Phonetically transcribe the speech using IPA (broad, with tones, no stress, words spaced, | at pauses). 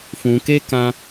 fũ˧ke˦ kã˦